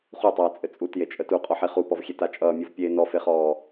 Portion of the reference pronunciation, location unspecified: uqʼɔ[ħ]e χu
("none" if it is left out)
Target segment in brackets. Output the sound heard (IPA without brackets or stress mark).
ħ